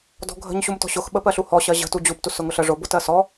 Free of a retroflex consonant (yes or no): no